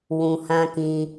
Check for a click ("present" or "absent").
absent